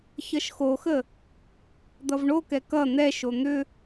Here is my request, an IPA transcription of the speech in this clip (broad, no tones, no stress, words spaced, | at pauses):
çʌʃxoxə | d̪ʌvɳokɛ kʌ n̪ɛʃo n̪ʏ